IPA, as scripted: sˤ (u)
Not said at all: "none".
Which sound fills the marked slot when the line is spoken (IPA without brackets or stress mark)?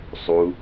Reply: u